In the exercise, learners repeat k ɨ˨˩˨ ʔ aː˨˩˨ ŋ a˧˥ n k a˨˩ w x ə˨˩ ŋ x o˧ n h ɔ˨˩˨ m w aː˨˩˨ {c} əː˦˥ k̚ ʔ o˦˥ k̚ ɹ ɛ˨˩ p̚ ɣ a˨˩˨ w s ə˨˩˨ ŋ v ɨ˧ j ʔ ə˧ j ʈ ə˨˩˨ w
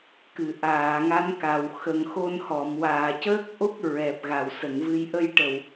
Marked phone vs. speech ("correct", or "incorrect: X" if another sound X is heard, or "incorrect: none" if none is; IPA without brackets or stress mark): correct